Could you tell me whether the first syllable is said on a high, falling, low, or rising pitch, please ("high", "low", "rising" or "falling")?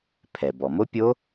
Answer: low